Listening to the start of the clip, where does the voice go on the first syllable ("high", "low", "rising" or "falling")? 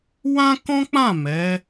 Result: high